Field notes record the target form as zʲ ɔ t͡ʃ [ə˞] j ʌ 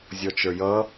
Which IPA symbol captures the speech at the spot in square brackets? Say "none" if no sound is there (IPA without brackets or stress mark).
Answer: ə˞